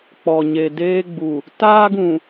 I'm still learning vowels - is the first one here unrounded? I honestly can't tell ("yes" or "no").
no